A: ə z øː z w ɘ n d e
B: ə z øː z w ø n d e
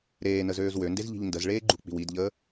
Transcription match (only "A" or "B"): B